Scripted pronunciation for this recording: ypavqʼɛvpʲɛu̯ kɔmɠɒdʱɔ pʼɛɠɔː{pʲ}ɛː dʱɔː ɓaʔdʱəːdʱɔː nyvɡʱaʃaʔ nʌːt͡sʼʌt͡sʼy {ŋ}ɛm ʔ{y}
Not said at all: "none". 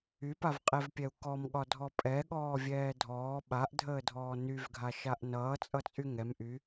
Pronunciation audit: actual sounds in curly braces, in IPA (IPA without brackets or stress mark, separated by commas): vʲ, ŋ, y